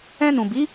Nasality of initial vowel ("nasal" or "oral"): nasal